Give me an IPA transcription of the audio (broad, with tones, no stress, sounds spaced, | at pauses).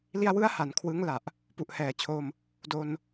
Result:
l i˧ a̯ w ɯ˦˥ a̯ h a˩˦ n kʰ w ɯ˦˥ ŋ l a˨˩ ʔ | p u˨˩ ʔ h ɛː˨˩ t͡ɕʰ o˧ m | d o˧ n